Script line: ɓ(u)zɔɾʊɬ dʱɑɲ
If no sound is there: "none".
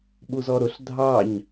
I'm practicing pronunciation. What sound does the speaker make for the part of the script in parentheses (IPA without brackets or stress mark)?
u